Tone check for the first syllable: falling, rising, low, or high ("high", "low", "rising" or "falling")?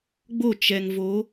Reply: falling